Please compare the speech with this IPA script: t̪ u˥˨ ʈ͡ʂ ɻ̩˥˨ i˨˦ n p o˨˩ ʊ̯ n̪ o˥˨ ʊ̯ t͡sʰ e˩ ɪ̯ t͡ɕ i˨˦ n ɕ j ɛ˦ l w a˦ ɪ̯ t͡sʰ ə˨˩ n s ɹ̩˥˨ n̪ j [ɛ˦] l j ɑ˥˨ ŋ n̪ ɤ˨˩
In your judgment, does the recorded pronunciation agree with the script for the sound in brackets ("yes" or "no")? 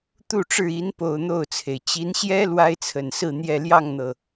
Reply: no